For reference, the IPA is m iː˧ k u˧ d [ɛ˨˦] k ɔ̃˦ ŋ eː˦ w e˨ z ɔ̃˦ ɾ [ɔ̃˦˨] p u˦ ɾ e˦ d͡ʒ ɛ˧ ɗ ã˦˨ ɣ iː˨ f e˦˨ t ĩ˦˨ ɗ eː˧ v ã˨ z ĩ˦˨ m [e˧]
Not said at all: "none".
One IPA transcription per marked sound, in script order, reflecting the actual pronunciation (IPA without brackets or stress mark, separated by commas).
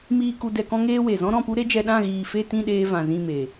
ɛ˧, ɔ̃˦˨, e˨